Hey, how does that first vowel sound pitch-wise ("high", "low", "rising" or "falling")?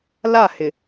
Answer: falling